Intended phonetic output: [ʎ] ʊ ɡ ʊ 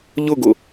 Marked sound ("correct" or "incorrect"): correct